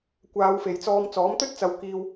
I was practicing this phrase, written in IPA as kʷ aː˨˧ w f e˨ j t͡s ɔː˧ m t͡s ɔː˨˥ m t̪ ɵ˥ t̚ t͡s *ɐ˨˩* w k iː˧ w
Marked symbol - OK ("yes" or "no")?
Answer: no